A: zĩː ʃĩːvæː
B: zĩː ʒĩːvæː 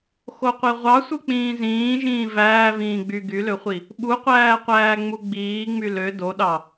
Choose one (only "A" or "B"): B